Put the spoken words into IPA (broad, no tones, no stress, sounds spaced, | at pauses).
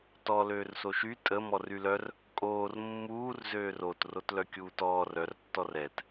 t ɔ l øː r s o ʃ y tʼ ə m ɔ r y l œ r | kʼ oː r mː uː r z øː r o t r o t l œ kʲ uː t ɔː r œ r tː ɔ r ɛ t